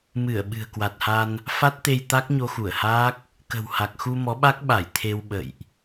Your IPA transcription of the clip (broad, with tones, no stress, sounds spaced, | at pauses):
m ɨ˧˩ ə̯ ɓ ɨ̤˨˩ ə̯ k w a˨˩ t̚ h a˧ n | f a˦˥ t̚ t̪ e˧ j t̪ a˦˥ k̚ ɲ o˧ x u˧˩ ə̯ h aː˦˥ k̚ | k ə̤˨˩ w h a˨˩ k̚ x u˧ m ɔ˨˦ ɓ a˦˥ k̚ ɓ a˧˩ j t̪ʰ e˧ w ɓ ə̰˧˨ j ʔ